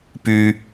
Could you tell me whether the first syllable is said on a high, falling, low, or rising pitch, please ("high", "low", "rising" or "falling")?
high